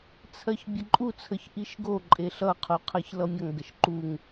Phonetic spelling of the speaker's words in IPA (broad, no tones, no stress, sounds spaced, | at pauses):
t͡sʰ ɜ ç bʲ ə ǃʼ u t͡sʰ ə ç ʔ i ʃ ɡ o ǃʼ e ɬ ʌ qʰ u qʰ ɜ ç l ʌ mʲ ʌ ŋ ɡ ə ʃ ǃ u ŋ